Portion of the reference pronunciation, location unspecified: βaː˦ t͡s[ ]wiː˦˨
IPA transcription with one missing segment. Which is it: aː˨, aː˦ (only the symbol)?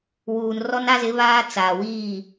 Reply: aː˨